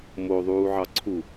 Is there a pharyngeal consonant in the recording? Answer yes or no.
yes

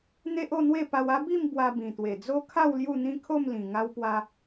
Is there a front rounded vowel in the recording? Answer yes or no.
no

